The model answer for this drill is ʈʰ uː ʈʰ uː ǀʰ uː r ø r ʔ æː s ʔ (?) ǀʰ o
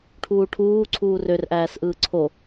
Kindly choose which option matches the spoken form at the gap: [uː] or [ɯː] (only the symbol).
ɯː